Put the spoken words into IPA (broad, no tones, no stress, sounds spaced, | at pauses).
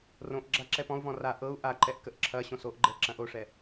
r õ ʔ ɡ͡ǁ a ǁ ɛ p ɔ̃ u̯ v ɔ̃ r a ʔ ɤ u̯ ʔ a ǃ ɛ ʔ k ə ʔ ǁʰ ɐ ɕ õ s o ʔ ɡ͡ǃ ɛ ǁ ɐ̃ ʔ o ʂ ɛ